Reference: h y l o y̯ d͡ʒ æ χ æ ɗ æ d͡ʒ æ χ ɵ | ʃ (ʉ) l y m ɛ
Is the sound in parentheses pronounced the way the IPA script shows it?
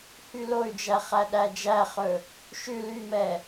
yes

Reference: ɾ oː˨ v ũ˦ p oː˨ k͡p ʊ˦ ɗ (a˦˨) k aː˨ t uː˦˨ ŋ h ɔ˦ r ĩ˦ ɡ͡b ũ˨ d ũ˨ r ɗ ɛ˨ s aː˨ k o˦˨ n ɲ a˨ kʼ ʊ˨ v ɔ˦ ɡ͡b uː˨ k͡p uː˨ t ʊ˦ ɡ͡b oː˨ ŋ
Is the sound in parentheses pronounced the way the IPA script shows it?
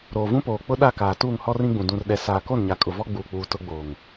yes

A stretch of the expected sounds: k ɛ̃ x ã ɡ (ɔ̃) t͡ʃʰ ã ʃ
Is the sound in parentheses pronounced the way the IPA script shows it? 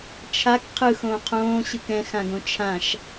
no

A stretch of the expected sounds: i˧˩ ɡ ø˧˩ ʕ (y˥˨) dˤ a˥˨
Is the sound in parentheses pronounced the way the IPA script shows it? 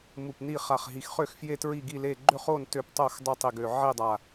no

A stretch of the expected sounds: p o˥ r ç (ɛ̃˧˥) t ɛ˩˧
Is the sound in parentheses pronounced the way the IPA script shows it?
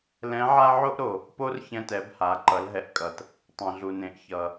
no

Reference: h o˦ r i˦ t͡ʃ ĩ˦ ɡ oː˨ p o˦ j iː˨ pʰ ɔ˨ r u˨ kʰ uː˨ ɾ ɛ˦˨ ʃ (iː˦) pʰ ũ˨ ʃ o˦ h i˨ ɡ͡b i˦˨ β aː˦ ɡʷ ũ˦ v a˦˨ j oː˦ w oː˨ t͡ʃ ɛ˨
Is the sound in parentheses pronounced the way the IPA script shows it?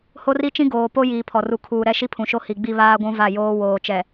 no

